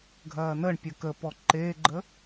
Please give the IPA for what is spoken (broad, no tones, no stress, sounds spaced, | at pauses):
ɡʱ ɐː n ə ɳ pʲ ə k ə p ɔ ǃ eː ɡ͡ǃ ə